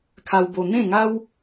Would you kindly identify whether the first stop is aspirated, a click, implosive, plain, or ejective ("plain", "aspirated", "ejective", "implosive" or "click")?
aspirated